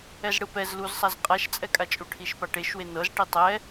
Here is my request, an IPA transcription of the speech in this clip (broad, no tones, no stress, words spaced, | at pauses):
ɛzɽɯpɛz luzsˤaz qʼaʃt͡sʼɛkʼat͡ʃʼu ʈʰiʃpaʈeʃwe nɤz ʈitˤɛ